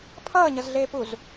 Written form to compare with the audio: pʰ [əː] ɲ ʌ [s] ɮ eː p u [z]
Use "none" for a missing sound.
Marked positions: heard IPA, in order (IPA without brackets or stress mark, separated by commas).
ʌː, z, z